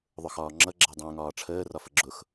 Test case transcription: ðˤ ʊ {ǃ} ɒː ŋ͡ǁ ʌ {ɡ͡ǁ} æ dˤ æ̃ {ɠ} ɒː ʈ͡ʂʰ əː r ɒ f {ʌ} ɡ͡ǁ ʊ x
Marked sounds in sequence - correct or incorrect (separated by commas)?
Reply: incorrect, correct, incorrect, incorrect